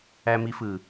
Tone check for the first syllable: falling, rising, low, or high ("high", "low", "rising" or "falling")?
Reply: low